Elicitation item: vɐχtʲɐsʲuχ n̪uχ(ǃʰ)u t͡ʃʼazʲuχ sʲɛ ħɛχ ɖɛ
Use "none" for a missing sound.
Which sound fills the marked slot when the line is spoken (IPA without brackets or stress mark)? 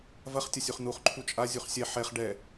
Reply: ǃʰ